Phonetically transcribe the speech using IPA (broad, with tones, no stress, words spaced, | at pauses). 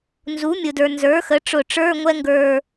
nzu˩˥mʲʊ˩də˞˩ nzə˞˩˥xə˩˥ʈ͡ʂʊ˧˩ʈ͡ʂə˞˧˥˧ ŋʷɛ˥ŋɡə˞˧˩